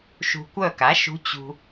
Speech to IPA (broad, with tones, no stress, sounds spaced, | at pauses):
ʃ ṳ˧ kʷ œ˥˨ k a˩˥ ʃ ṳ˧˥ t͡ɕ ṳ˧